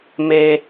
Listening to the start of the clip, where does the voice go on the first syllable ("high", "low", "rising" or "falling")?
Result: high